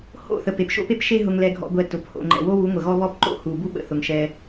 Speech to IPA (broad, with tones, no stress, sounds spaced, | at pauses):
h o̰˦˨ θ ə˨ p e˨ p ʃ o̰˦ p e˦ p ʃ e˦ ɦ ʊ˧ ŋ l ɛ˧ ɡʱ ɔ̰˧ ɡʷ ɛ˧ t ʊ˨˦ p h o̰˧ ŋ͡ǃ ɛ̰˨ w o˦ w u˨˦ ŋʷ ə˨ ɣ ɔ˦ β ɔ˦ p ǃ o̰˦ h u˨ b u˦ ɓ ə̰˨ θ ʊ˨ ŋ ʃ ɛ˧